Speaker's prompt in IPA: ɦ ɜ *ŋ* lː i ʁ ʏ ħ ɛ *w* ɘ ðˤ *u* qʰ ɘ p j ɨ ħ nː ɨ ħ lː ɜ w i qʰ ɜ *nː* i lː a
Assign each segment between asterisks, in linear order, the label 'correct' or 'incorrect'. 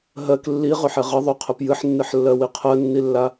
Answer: incorrect, incorrect, incorrect, correct

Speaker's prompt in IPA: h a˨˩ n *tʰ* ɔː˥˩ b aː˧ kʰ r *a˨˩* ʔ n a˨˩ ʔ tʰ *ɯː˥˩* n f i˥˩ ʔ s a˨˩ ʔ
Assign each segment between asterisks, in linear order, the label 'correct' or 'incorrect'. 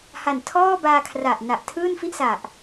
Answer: correct, correct, correct

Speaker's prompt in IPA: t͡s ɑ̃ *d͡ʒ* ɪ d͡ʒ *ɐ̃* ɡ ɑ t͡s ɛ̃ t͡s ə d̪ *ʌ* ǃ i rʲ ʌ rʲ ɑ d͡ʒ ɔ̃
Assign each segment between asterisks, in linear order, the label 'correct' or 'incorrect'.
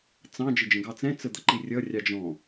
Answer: correct, incorrect, correct

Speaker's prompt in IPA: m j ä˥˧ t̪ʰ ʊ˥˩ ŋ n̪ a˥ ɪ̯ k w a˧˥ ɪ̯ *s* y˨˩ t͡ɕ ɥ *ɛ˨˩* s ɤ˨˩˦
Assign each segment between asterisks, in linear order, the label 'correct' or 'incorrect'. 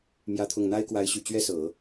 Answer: incorrect, incorrect

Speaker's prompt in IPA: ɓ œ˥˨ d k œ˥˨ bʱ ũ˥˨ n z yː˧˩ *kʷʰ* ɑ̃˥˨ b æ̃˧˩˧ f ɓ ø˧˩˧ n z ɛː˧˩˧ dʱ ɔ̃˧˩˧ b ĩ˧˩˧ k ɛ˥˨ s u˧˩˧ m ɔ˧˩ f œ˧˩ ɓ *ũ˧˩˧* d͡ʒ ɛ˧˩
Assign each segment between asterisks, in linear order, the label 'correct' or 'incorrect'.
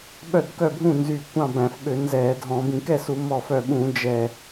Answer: incorrect, correct

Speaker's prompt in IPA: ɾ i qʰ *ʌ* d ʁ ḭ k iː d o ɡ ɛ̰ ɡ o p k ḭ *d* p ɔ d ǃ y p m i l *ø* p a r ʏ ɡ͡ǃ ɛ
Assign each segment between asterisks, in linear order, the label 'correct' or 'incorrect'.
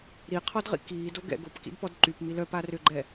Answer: incorrect, correct, incorrect

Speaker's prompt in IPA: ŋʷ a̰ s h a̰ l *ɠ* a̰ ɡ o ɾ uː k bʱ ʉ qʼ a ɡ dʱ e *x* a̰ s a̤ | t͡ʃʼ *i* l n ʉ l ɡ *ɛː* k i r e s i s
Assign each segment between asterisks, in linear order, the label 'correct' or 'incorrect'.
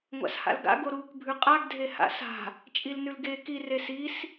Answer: incorrect, incorrect, correct, incorrect

